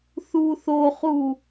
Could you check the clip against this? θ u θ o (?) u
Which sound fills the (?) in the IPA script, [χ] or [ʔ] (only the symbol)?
χ